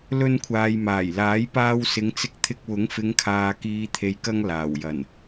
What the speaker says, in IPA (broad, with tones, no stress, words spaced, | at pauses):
lɵ˧nkʷʰaː˨j maː˨˩jlaː˨˥jpaː˧w sɪ˨˧ŋt͡sɪ˧k̚t̪ʰɪ˧k̚ wʊ˨˥ŋfɪ˨˧ŋkʰaː˨kiː˨ t̪ʰe˨jkɐ˧ŋ laː˨˩wjɐ˨˩n